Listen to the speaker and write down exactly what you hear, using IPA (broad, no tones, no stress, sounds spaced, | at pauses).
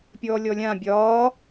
pʲ ɔː lʲ ɔ lʲ ã bʲ ɒː